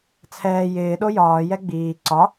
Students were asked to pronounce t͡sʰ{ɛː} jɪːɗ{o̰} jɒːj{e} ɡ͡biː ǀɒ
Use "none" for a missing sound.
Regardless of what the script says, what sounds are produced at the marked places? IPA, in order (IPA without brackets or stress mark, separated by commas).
ɛː, o, ɛ